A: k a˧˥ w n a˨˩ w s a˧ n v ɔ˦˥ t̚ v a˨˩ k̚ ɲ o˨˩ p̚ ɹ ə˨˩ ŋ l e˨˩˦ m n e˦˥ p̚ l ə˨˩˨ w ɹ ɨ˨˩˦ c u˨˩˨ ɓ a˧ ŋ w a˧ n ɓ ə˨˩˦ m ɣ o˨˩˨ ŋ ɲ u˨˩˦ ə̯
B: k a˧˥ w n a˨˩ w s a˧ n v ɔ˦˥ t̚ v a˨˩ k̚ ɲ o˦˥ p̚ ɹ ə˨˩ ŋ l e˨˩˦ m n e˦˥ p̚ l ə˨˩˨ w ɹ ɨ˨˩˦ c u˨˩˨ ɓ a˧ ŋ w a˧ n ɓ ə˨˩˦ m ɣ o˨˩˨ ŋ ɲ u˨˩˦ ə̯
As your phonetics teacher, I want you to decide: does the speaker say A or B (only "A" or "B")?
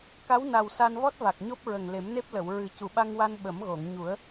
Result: B